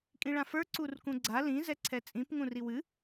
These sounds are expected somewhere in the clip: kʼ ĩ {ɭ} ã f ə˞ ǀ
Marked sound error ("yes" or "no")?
no